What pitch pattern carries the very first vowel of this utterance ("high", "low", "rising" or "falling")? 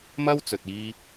high